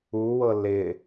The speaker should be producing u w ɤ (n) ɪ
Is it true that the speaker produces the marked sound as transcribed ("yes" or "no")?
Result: no